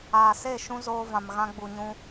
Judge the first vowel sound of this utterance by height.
low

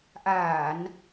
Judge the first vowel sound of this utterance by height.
low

